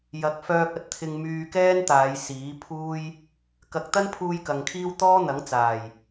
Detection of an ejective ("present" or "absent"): absent